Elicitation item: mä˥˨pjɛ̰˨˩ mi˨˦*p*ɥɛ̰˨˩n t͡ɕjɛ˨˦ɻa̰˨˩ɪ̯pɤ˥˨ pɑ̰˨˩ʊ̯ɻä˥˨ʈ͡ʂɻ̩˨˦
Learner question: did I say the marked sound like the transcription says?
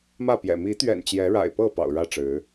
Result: no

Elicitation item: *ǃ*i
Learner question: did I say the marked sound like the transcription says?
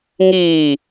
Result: no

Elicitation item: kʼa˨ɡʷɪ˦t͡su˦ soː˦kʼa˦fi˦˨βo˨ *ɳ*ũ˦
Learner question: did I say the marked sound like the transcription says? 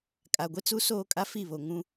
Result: no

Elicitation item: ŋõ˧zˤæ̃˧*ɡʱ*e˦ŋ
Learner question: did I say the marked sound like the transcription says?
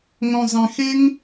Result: no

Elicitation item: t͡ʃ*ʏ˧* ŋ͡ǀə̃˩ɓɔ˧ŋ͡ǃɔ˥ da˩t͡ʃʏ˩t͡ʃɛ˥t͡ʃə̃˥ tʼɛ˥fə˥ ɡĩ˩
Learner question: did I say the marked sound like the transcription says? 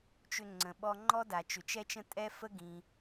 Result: yes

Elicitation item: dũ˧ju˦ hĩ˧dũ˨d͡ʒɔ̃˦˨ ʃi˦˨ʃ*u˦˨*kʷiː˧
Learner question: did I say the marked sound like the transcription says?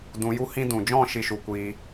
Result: no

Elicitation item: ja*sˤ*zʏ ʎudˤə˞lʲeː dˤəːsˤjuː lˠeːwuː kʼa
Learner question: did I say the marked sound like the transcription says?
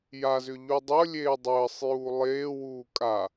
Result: no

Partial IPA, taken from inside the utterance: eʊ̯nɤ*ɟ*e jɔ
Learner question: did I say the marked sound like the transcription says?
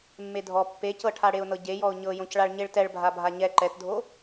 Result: yes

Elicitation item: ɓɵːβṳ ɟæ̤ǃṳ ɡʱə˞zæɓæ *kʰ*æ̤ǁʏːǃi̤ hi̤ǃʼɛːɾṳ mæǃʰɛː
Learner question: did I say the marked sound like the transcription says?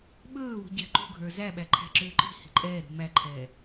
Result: no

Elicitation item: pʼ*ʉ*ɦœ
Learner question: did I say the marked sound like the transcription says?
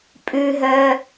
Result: yes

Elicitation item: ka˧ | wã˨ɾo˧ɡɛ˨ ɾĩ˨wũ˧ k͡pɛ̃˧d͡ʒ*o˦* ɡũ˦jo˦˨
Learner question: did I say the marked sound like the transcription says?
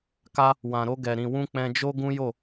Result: yes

